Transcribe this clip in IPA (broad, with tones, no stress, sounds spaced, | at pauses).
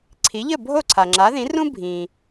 ǀʰ i˩˥ ʎ ə˥˩ bʱ o˥˩ ǀʰ a˩ ŋ͡ǁ a˩˥ ð ĩ˩˥ r ũ˥ bʱ ĩ˩